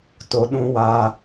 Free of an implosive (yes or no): no